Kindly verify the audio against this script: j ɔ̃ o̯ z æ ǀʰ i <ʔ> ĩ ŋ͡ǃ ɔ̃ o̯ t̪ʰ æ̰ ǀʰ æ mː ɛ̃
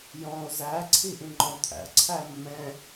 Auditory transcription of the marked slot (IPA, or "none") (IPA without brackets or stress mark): ʔ